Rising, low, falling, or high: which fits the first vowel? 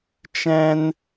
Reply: high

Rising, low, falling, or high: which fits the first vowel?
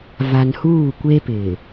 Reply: low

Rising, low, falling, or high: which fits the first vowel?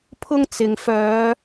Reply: high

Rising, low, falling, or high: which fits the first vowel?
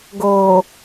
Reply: low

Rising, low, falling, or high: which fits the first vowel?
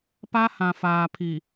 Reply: high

